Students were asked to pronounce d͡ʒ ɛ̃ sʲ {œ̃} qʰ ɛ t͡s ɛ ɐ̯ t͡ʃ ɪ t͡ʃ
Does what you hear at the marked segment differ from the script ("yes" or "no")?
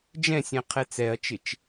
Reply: yes